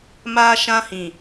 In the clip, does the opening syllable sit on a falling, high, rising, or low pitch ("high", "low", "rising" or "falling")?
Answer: high